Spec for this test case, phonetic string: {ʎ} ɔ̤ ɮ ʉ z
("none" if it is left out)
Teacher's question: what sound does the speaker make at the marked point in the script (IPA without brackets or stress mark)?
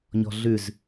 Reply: ɲ